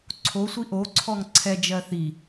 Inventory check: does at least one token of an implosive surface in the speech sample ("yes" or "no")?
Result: no